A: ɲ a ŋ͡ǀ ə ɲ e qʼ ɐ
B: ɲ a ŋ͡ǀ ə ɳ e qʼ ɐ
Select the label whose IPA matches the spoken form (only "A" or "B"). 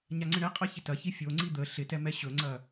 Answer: B